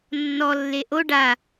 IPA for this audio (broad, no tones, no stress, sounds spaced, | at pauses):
nː ɔ lː e ʔ o ɖ a